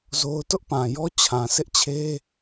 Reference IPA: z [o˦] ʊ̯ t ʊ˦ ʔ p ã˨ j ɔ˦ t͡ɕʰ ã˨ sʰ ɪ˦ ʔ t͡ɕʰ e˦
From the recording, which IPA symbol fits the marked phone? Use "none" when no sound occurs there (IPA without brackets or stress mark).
o˦